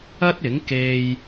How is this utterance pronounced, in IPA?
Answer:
ɐ˥ t̚ ɪ˨˥ ŋ k e˧ j

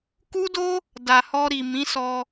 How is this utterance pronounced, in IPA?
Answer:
k u˦ d o˦ | d a˨ h ɔ˧ ɾ i˨ m ĩ˨˦ s ɔ˧

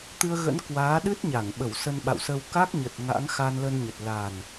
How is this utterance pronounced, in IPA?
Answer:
t̪ ɨ˧ ə̯ ɣ ə̰˧˥ n k w aː˨˦ ɗ ɨ˦˥ t̚ ɲ a˧˩ ŋ ɓ ə˧˩ w s ə˧ n ɓ a̰˧˨ w s ə˧ w k a˦˥ k̚ ɲ ə˨˩ t̚ ŋ a̰˧˥ ŋ x a˧ n l ə˧ n ɲ ə˨˩ t̚ l a˨˩ n

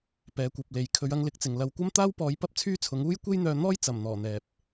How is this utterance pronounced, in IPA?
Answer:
p ɛː˨˧ kʷ ɐ˨ p̚ l e˨ j kʰ ɵ˨˧ ɥ ɐ˧ ŋ l ɪ˨˥ k̚ t͡s ɪ˨ ŋ l ɐ˧ w kʷ ɐ˥ m t̪ aː˥ w p ɔː˨˧ j p ɐ˥ p̚ t͡sʰ yː˥ t͡sʰ ʊ˨˥ ŋ uː˥ j kʷ e˥ j n̪ œː˧ n̪ ɔː˥ j t͡s ɐ˨˩ m n̪ ɔː˨˩ n̪ ɛː˨ p̚

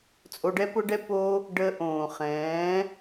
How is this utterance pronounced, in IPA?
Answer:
t͡sʼ o˧ ɖ ɛ˦ p ʊ˦ ɖ ɛ˦ p o˦ | ɖ ə˧ ʔ õː˨ χ ɛ̃ː˨˦

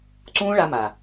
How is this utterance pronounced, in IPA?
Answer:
ǀ ũː˦ ɭ a˧ m a˨

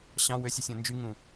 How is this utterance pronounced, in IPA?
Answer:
ɕ ɑ̃ w ø sʲ i sʲ õ n d͡ʒ y ŋ ũ

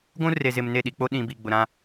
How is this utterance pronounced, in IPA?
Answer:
ɡʷ ũ˦ r e˨ z ɪ˨ m n e˦˨ ɗ i˨ k͡p o˦ ɗ ĩ˨ b i˨ ɡ͡b ʊ˨ ɾ ã˦

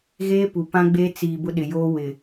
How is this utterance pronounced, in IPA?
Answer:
ɣ eː˦ p u˨ p ã˦ ɡ͡b e˦ t͡s iː˨ b ʊ˦ ɗ ɪ˨ j oː˦ w ɪ˨

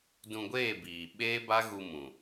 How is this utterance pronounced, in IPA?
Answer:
d ũ˧ ɡʷ eː˦˨ b iː˨ ɓ eː˦ b a˦ ɣ u˧ m ũ˨

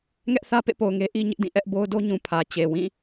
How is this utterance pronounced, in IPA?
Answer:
ŋ ɛ˦ ʔ θ ä˦ p ḛ˦˨ p o˨ ʊ̯ ŋ e˦ ʔ i˦ ɲ ɪ˦ ʔ d ĩ˦˨ ʔ ɛ˦ ʔ b o˦ ʊ̯ d o˦ ɲ ũ˨ pʰ ä˨ t͡ɕ e˨ w ĩ˦˨

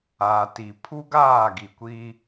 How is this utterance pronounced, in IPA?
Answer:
a˨ t i˨ pʰ u˦ ɡ aː˦˨ ɡ i˨ kʷ i˦

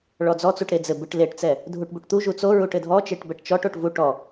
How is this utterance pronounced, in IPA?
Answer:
ɭ ɔ d͡z ɔ t͡s u ʈ ɾ e d͡z ɘ b ɨ ʈ l e ʈ t͡s ɛ | dʱ u ʈ b u ʈ t̪ u ʒ u t͡s o ɹ u ʈ ɘ dʱ ɔ t͡ʃ e ʈ b ɛ ʈ t͡ʃ ɔ ʈ o ʈ v u ʈ ɔ

